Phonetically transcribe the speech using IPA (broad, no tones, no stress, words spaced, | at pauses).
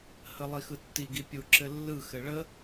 həlˠixɯtːi ɡipʲu ǁɘlːɯ xɘɭə